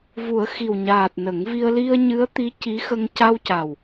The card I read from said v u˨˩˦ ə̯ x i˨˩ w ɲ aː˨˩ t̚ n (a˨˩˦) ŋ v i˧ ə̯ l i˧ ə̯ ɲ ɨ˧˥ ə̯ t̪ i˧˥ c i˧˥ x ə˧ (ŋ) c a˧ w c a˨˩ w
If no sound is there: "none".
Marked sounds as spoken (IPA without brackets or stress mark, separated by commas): ə˨˩˦, ŋ